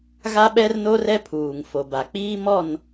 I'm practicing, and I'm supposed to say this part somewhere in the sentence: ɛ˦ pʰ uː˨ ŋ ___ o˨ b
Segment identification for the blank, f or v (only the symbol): f